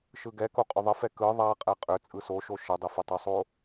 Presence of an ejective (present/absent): present